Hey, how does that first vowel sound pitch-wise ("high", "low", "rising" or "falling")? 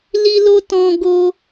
high